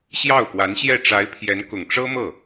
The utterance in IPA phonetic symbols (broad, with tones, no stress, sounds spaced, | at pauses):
ɕ j ɑ˥˩ ʊ̯ p w a˧˥ n ɕ j ɛ˥˩ ʈ͡ʂ a˧˥ ɪ̯ pʰ j ɛ˧˥ n k ʊ˨˩ ŋ ʈ͡ʂ ɤ˥ m ɤ˥˩